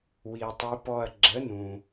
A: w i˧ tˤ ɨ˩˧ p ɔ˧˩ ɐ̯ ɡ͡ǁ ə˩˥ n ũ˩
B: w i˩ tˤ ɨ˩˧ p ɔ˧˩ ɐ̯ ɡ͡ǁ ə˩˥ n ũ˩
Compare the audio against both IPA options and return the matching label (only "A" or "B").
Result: B